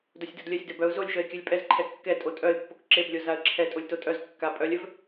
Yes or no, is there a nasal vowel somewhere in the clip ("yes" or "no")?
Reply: no